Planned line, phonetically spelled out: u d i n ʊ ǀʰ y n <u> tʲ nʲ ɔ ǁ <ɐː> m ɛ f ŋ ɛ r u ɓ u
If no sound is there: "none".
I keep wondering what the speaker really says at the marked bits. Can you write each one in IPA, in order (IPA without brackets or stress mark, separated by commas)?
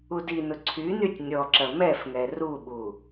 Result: y, ɐ